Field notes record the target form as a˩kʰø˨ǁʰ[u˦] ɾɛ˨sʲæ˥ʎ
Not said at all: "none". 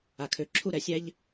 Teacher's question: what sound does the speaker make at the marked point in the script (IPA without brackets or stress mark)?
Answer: u˥